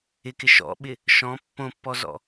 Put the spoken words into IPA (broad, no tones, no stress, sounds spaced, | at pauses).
ɪ k ɪ ʃ ɔ̰ ɓ ɪ | ʃ ɔ̃ pː õ pː ɔ z ɔ̰